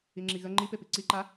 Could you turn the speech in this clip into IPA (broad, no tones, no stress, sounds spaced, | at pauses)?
i ŋ͡ǁ i ɣ ə ŋ͡ǃ i p e p i ǀ i ǃ a